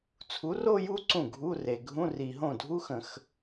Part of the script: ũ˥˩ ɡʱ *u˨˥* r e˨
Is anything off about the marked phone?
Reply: yes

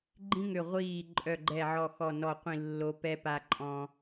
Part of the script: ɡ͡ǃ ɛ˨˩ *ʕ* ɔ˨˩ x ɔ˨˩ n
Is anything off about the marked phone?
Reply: no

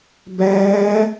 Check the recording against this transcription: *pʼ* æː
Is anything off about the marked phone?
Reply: yes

